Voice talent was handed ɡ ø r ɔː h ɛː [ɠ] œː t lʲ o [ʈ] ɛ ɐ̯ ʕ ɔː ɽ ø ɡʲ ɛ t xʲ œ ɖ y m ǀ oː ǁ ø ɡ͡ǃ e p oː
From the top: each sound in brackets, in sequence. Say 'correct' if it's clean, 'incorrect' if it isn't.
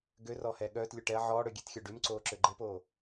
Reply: correct, correct

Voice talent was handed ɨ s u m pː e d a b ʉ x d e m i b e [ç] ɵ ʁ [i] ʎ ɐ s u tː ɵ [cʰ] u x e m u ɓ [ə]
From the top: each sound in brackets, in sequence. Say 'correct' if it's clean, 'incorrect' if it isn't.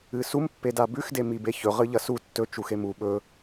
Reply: correct, incorrect, incorrect, incorrect

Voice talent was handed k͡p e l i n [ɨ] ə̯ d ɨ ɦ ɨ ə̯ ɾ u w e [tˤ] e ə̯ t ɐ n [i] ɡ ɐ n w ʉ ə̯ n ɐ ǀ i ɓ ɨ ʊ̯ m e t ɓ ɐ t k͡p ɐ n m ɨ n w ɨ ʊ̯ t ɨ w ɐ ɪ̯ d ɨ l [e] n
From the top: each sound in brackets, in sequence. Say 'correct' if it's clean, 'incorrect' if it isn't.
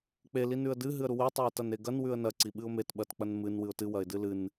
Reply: incorrect, correct, incorrect, incorrect

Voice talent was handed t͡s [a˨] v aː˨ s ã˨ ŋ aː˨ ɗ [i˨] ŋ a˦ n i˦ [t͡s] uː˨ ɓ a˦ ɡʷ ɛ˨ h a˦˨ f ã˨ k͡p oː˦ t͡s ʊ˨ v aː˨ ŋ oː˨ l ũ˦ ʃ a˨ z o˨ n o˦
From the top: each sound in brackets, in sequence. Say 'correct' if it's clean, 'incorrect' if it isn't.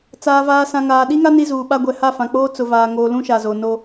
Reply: incorrect, incorrect, incorrect

